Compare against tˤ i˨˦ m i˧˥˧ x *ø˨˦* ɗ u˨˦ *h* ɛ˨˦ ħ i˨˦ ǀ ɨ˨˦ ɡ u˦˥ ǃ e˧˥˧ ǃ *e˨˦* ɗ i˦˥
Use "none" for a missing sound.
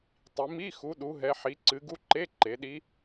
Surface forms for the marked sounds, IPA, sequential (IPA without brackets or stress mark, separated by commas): u˨˦, ɦ, e˨˦